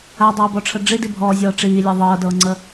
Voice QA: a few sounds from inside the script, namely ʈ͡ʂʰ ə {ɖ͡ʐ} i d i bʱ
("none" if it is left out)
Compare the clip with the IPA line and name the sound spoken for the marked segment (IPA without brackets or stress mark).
ɖ͡ʐ